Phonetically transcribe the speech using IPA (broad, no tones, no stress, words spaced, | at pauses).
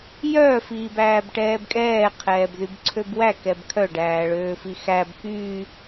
jœ fiːbæːbʈɛːbkʼɛː qʰɛːbðybǀʰøbwæ kɛbkʰœ ɖæːɭøːfixæb kyː